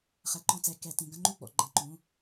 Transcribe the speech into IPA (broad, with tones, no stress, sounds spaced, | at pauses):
χ ɛ˩ ǃ ɔ̃˧˩ t͡s ɛ˩˧˩ k ɛ˧˩˧ t ĩ˩˧˩ ɡ ɐ̃˥˧ ŋ͡ǃ u˥˩ ɡ͡b ɔ̰˧˩ ɡ͡ǃ ɐ̃˧˩˧ ǃ ũ˩˧˩